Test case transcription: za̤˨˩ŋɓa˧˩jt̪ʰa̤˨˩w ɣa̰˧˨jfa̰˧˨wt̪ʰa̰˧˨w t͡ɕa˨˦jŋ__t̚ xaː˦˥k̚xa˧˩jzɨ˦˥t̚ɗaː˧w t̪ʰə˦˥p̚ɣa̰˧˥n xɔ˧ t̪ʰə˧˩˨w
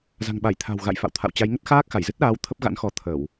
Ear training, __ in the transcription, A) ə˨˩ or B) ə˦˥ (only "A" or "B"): B